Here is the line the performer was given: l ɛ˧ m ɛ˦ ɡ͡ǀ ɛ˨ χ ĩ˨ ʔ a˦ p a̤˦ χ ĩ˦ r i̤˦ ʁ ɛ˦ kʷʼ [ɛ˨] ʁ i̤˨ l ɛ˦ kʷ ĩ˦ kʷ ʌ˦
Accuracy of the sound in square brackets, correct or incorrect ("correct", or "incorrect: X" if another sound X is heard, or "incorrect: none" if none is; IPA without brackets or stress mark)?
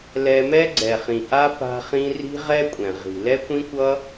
incorrect: ɛ̃˨